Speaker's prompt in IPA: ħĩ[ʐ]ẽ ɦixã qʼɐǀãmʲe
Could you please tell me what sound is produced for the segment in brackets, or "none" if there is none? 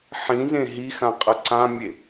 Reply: z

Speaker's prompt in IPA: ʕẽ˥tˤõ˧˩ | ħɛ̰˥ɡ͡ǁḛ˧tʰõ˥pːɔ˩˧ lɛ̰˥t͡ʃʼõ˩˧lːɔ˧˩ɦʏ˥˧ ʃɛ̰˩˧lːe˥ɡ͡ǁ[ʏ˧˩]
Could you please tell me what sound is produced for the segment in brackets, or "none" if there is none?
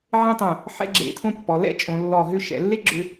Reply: ʏ˧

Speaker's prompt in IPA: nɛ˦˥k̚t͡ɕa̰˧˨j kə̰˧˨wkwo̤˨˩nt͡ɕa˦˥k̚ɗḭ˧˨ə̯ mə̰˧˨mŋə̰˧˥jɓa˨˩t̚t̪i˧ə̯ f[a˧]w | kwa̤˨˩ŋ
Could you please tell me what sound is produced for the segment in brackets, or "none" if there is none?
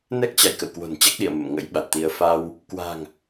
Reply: a˧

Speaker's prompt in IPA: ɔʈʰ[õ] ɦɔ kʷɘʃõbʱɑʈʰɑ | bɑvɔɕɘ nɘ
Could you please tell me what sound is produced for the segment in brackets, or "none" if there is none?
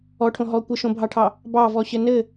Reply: õ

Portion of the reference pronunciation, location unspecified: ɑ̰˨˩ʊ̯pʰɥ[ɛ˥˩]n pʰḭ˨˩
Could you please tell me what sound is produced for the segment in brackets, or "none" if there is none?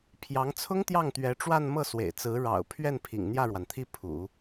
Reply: ɛ˥˩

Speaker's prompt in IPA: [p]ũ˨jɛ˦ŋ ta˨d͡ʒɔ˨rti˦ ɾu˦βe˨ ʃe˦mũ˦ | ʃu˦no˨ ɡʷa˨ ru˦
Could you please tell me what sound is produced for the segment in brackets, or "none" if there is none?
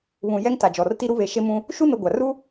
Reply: β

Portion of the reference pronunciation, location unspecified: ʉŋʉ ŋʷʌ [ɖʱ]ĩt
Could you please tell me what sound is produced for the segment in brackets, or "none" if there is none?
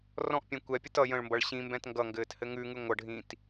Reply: ɖʱ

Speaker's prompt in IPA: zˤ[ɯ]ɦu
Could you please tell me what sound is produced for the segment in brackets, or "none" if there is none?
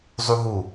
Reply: u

